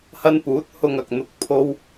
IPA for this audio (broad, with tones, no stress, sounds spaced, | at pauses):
h ɐ˥ n p uː˨˥ t̚ h ʊ˧ ŋ ɐ˨ k̚ n̪ ʊ˧ k̚ pʰ o˥ w